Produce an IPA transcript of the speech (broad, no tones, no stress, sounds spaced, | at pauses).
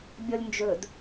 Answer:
bʲ ɔ lʲ n d͡ʒ ɵ d